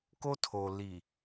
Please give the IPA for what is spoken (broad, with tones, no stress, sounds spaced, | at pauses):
k o˦ tʰ o˨ l i˨